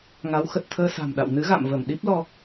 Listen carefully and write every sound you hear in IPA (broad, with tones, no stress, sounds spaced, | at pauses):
ŋ a˨˦ w x ə˨˩ t̚ t̪ʰ əː˧ s a̤˨˩ m ɗ a̰˧˨ w n ɨ˨˦ ɣ a̰˧˨ m v ə˧˩ m ɗ i˦˥ p̚ l ɔ˧